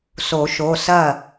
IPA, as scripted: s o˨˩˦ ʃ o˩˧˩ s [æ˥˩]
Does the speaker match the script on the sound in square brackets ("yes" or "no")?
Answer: no